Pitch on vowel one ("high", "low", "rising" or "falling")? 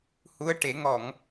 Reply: rising